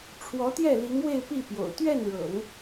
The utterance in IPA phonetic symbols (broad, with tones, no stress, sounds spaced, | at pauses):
ʈ͡ʂʰ w ɔ˧˥ t̪ j ɛ˥˩ l i˧˥ ŋ w e˥˧ ɪ̯ p i˥˩ p j o̰˨˩ ʊ̯ t̪ ɥ ɛ˥˩ n ɻ ɤ̰˨˩˦ ŋ